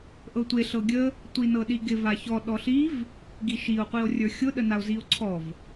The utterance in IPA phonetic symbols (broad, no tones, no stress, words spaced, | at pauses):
ʔɤtʷe ɬɤɡʲə | tʷinɤɗiɡɪ vaçɔ ɗɔɬiv | ɡiʃio̯ qʷio̯rʲə˞xʲʊ ɗənao̯zio̯ǀʰɔv